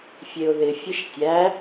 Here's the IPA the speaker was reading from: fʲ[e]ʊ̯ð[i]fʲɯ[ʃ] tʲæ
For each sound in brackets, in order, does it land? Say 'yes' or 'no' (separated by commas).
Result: yes, no, yes